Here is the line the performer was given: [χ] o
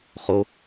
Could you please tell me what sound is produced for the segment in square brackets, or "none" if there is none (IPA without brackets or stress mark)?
χ